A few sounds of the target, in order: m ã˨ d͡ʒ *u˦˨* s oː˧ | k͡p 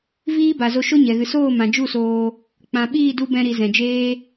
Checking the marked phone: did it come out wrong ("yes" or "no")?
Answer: no